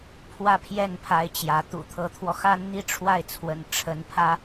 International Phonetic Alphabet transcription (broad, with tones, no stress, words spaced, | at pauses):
pʰwä˥˧pʰjɛ˥˩npʰa˧˥ɪ̯ t͡ɕjä˧˥ t̪ṵ˨˩t̪ʰɤ˧˥t̪ʰwɔ˧ xa˥nn̪i˥ʈ͡ʂʰwa˥˩ɪ̯t͡sʰwə̰˨˩n ʈ͡ʂʰə˧˥npʰä˥